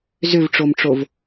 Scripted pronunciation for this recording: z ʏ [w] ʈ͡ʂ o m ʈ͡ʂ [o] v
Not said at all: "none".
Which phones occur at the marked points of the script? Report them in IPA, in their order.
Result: v, o

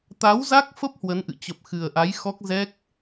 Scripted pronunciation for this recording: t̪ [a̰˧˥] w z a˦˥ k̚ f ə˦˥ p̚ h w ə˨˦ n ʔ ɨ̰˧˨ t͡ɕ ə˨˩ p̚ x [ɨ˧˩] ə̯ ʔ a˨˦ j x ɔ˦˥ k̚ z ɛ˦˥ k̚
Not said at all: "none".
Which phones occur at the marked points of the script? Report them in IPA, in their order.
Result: a˨˦, ɨ˨˩

